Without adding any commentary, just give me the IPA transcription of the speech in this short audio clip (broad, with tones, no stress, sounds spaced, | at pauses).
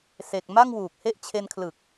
s e˨˩ k̚ m a˥˩ ŋ w uː˨˩ k̚ h e˦˥ ʔ t͡ɕʰ e˧ n kʰ l ɯ˨˩ k̚